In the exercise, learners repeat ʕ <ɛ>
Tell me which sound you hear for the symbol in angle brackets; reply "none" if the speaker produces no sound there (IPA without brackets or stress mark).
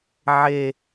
e